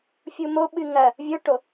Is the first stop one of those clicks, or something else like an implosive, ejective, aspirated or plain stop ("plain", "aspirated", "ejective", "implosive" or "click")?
implosive